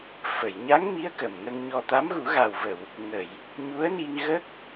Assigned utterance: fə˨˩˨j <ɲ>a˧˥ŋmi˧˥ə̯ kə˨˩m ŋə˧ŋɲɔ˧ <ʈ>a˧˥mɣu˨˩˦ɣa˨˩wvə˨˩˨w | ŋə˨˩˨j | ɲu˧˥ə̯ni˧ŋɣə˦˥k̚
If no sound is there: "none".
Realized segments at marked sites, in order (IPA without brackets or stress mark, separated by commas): ɲ, t̪